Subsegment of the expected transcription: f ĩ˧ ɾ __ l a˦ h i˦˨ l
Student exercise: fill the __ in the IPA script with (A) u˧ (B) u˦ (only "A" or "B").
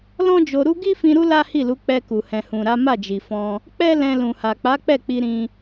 B